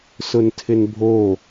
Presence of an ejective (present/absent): absent